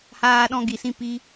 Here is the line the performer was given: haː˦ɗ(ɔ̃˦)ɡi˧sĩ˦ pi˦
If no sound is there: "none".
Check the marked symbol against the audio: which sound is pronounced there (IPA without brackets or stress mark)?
ɔ̃˦